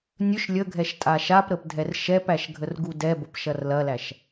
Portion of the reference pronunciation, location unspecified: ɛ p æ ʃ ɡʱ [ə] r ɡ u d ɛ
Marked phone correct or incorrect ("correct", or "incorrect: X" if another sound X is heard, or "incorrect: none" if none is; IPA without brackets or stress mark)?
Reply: correct